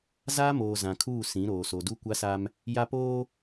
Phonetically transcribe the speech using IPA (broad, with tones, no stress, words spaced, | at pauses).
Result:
zaː˦moː˨ zã˨kʰuː˦˨sĩ˨˦ɾoː˨ so˨du˦kʷa˦sa˦m | ja˦ poː˦